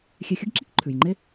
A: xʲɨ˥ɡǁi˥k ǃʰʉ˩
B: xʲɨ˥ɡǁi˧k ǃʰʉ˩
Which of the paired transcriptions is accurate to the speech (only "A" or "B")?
A